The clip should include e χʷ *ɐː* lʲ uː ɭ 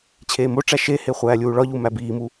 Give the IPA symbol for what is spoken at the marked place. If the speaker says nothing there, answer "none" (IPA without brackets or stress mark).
æː